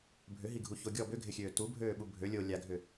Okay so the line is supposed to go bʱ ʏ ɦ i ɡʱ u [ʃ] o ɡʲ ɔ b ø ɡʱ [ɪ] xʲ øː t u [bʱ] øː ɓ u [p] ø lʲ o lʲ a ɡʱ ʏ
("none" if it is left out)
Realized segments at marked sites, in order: ç, ɪ, bʱ, bʱ

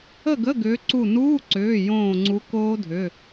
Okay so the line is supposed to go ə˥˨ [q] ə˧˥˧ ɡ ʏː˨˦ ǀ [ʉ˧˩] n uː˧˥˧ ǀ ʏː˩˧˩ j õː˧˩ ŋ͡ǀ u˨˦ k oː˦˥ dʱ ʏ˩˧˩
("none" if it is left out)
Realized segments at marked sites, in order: ɡ, u˧˩

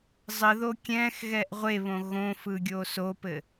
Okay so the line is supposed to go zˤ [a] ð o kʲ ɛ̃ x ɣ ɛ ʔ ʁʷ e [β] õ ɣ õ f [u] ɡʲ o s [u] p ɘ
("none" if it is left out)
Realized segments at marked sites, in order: ə, β, ɯ, o

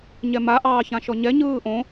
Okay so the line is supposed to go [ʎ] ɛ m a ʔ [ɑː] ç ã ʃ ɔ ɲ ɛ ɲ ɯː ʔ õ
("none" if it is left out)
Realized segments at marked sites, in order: ɲ, ɑː

